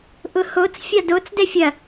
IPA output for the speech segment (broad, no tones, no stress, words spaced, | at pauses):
ʔʊhot͡s fʲadot͡s dɛfʲɐ